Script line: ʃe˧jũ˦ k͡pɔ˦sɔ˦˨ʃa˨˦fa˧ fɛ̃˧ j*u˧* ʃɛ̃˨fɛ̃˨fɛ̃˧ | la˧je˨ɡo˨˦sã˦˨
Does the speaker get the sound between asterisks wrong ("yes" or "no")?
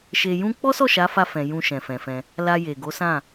yes